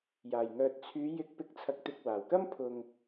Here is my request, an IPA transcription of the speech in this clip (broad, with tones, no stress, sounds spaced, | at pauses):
j aː˨˩ j ŋ œː˨ t̚ t͡sʰ yː˨˧ j ɪ˨˥ k̚ p ɪ˨˥ k̚ t͡sʰ ɐ˨ k̚ t̪ ɪ˨ k̚ w aː˨˩ w k ɐ˥ m pʰ ʊ˨ ŋ